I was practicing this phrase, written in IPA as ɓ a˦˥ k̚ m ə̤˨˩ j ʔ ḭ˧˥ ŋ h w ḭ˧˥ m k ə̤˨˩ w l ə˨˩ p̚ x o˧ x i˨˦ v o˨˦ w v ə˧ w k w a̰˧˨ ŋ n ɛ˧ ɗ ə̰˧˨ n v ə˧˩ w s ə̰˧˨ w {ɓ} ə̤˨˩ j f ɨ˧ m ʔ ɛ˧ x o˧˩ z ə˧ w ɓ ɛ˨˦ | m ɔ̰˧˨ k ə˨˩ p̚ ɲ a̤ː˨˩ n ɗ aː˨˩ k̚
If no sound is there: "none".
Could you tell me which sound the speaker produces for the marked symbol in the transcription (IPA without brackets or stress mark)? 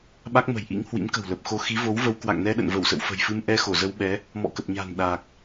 f